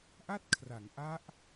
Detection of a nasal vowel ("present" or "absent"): absent